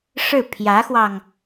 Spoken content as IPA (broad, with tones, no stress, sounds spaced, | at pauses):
ʂ ɻ̩˥˩ pʰ j ä˧˥ x w ɑ˧ ŋ